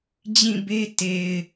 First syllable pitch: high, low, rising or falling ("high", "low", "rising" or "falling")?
falling